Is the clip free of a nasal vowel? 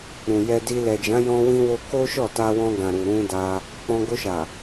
no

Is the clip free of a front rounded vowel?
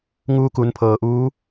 yes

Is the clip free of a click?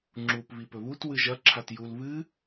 no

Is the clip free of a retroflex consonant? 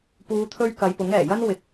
yes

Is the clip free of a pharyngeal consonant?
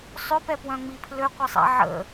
no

